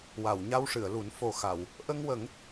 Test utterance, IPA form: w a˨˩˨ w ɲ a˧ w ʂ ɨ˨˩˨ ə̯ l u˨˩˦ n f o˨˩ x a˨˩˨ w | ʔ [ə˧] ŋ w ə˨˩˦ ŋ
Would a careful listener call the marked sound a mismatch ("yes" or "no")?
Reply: no